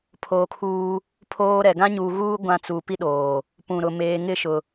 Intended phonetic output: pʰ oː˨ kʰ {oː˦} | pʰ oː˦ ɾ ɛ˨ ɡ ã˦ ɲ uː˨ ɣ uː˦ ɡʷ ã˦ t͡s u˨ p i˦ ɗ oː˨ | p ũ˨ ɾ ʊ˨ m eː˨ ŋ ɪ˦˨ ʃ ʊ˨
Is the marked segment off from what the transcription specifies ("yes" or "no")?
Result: yes